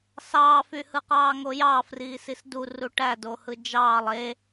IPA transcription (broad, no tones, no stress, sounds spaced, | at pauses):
s ɑː f y h ɯ q ɑː ŋ o j ɑ f r iː s i s d u r u ʈ æ d o h ɯ d͡ʒ ɑː lˠ e